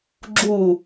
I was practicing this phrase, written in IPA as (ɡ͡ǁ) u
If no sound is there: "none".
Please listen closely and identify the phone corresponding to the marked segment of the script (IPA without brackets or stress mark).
ɡ͡ǁ